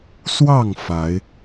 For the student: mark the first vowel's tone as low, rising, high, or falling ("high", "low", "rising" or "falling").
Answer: falling